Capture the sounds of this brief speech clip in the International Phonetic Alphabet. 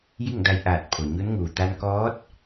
j i˥˨ ŋ d a˧ j ʔ aː˧˩ t̚ pʰ o˩ ɲ u˧˥ n ŋ uː˩ t̪ a˧ n k ɔː˧˥ t̚

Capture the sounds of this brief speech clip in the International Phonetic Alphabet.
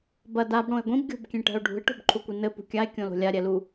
b ɐ d a b ɽ õ e̯ ɡʷ ĩ b ɡʲ o̤ b kʲ ẽ ʈ ɛ̤ o̯ ɖʱ ṳ e̯ ʈ o̤ b ǃʰ u kʷ i n ɘ p ṳ kʲ a e̯ kʲ õ l o̤ lʲ a ɾʲ ɛ l u

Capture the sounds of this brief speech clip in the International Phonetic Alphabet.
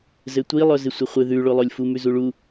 z ɘ tʷ i lˠ œ z ɪ sʷ ɪ χʷ ɪ ð ʉ ɭ o lˠ o lʲ f u m ʉ z u ɭ u

